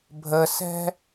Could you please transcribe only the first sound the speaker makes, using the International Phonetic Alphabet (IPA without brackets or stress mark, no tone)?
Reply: bʱ